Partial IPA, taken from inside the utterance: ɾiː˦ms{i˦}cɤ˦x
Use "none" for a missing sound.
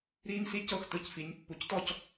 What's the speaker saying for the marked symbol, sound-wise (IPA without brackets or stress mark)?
i˦